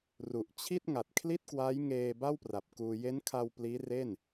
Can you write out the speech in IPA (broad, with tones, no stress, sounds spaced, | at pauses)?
r u˨˩ ʔ t͡ɕʰ i˥˩ t̚ ŋ a˨˩ t̚ kʰ l i˥˩ t̚ k w a˦˥ j ŋ eː˧ b a˥˩ w p r a˨˩ p̚ k uː˧ j e˦˥ n kʰ a˧ w p l iː˦˥ r e˥˩ n